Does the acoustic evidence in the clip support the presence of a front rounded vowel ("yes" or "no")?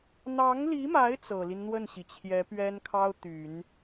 yes